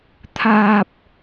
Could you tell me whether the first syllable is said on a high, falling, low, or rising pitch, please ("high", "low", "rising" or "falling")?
low